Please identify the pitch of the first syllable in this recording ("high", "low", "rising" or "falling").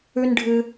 high